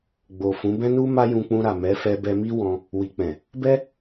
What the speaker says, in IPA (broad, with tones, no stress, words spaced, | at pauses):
ɡ͡bo˨fũ˨˦ bɛ̃˧nu˧ ma˦jũ˧k͡pũ˧ɾa˨ mɛ˨˦fɛ˧ bɛ˧mi˦wɔ̃˧ | wi˨k͡pɛ̃˨ | bɛ˦